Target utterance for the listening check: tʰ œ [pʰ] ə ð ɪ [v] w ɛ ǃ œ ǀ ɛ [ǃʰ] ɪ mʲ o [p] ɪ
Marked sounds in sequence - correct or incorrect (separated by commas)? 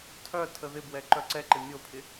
incorrect, incorrect, incorrect, incorrect